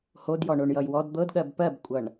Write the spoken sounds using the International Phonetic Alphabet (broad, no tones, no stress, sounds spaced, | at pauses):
h o d j ɔ ɳ o ɳ j ʌ j w ɔ d d̪ ɤ d ɠ ɜ b p ɜ b kʷʼ ʌ ɳ